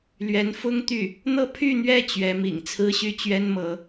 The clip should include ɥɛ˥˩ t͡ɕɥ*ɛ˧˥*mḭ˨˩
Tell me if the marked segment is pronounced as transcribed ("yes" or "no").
yes